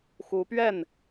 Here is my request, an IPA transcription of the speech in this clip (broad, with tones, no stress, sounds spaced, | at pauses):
x u˧˥ p ɥ ɛ˥˩ n